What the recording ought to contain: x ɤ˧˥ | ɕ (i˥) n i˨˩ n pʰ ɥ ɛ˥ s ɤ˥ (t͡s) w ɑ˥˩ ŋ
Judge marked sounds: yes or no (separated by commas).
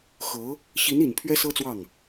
no, yes